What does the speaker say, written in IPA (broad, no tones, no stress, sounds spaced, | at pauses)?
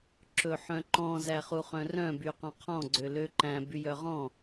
ǁ ɵ ħ œ̃ ǃ ɔ̃ z æ χ u χ œ̃ r œ̃ b y q ɔ̃ qʰ ɔ̃ ɡ͡ǀ ø l ø ǃ æ̃ b y j œ ʁ ɔ̃